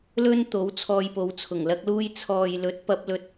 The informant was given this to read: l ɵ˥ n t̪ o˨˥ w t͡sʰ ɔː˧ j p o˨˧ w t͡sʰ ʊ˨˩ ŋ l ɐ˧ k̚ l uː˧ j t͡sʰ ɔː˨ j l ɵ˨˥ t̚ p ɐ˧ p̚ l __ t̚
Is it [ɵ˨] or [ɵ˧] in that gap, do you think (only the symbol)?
ɵ˧